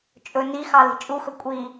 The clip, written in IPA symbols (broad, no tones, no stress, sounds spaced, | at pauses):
t͡ʃʼ ɵ n i x ɑ l i̤ t͡ʃʼ u x ɵ kʷʼ i